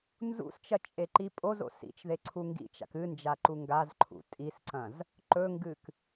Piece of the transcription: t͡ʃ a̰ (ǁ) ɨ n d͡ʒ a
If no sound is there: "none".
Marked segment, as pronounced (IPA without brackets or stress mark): k